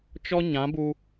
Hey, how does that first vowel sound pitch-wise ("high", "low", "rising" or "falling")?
high